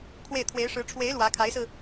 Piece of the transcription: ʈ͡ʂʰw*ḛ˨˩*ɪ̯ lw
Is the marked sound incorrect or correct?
incorrect: e˧˥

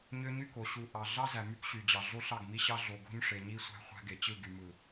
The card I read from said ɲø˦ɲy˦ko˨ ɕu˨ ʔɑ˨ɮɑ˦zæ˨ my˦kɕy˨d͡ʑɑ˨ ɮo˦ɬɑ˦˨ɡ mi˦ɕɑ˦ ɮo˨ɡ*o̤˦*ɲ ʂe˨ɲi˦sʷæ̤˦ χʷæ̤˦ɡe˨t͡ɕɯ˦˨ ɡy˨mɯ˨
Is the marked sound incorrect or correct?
correct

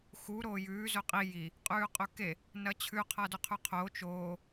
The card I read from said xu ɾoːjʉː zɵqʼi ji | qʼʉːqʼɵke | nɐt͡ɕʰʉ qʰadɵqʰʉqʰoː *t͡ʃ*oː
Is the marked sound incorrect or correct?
correct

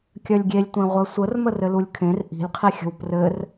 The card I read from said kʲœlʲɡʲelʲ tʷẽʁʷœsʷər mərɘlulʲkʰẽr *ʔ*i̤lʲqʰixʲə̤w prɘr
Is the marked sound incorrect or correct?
correct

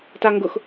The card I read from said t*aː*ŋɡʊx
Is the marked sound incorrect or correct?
incorrect: a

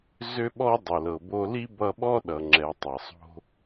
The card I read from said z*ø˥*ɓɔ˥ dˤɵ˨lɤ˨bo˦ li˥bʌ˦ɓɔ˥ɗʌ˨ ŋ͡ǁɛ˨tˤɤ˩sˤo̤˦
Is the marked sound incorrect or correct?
correct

